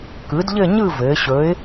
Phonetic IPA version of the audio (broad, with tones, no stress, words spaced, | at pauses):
kɯ˩˧d ʎɘ˥˧ɲɯ˥˧ vɘː˩˧ɕɵ˨˥ɪ̯